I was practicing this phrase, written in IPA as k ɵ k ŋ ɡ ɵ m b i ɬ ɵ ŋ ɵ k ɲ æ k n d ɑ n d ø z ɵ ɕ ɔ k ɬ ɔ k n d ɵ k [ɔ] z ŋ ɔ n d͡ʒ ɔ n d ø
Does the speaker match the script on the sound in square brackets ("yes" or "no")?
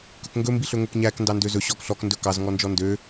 no